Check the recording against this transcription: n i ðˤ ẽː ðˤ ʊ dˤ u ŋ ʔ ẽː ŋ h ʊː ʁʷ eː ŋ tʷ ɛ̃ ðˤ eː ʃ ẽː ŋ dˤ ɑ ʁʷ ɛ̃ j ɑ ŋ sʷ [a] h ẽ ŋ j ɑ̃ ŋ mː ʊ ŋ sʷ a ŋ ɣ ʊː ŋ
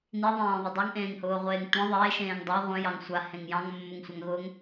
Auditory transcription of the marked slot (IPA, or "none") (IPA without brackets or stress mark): a